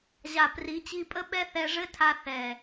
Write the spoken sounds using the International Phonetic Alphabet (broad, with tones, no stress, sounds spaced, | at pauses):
ʑ a˨ p r i˨˦ t͡ɕ i˧ pʼ ə˦ ɓ ɛ˦ θ ɛ˧ ʐ ɘ˦ tʰ a˧ θ ɛ˨